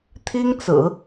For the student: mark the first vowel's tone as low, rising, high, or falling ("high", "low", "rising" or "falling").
high